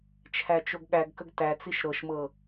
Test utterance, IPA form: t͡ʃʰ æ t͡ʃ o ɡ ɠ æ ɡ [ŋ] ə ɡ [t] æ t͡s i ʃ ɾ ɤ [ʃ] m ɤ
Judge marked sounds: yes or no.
no, yes, yes

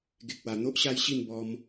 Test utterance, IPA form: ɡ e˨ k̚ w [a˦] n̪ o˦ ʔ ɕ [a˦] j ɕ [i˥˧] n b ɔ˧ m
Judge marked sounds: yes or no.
no, yes, yes

